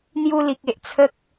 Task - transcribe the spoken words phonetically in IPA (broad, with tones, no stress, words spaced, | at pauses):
n̪ju˧li˨k̚e˨ʔ t͡sʰə˦k̚